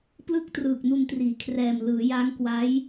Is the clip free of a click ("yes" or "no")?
yes